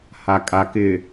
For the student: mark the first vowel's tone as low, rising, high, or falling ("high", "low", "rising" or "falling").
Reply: low